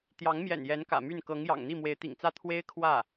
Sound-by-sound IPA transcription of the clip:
t̪jɑ˧˥ŋmjɛ̰˨˩n jɛ˧˥nkä̰˨˩ my˥˩n kɤ˧˥ŋjɑ̰˨˩ŋn̪i˥˩ mwe˧˥ɪ̯t̪ḭ˨˩ŋt͡sä˥˩ t̪ʰwe˥ɪ̯kʰwä˥˩

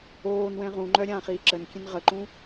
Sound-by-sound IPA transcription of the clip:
oːnwɛ̃ ʁũŋ͡ǃœ ɾʲãːχiːǁənkʲɛ̃n ʁəǃũ

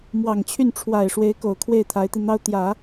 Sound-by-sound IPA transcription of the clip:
mwɑ˨˩ŋt͡ɕʰy˥˩n ʈ͡ʂʰwa˨˩ɪ̯ʂwe˧˥ɪ̯ko˨˩ʊ̯ kʰwe˥˩ɪ̯t̪ʰa˧˥ɪ̯t̪i˧ n̪ɑ˥ʊ̯t̪jä˨˩˦

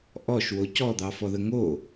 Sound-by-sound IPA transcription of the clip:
ʔɔʃwo cɔd̪ɑfɔðə ŋo

